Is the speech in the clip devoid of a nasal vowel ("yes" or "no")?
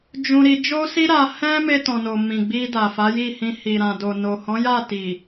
no